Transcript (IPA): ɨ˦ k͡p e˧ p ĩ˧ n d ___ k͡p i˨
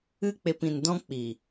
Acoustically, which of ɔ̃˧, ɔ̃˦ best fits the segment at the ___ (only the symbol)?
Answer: ɔ̃˦